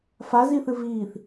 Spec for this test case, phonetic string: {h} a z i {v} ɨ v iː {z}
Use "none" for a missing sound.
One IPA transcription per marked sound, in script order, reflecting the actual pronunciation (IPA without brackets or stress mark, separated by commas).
f, θ, θ